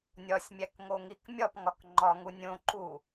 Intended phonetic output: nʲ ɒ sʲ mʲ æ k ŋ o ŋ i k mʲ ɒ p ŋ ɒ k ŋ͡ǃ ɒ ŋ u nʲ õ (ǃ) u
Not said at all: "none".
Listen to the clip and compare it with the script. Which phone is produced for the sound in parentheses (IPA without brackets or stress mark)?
ǃ